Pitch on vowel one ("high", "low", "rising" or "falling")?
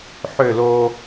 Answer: falling